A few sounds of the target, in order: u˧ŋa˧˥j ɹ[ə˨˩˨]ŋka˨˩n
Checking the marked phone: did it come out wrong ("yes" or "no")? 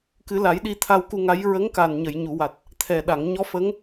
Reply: yes